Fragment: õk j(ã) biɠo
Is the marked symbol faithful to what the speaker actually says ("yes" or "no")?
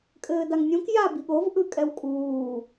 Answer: no